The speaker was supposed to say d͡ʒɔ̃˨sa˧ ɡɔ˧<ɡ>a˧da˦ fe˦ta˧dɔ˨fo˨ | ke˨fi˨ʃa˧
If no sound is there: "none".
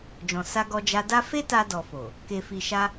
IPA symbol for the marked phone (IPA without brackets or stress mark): d͡ʒ